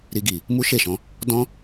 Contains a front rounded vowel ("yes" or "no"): no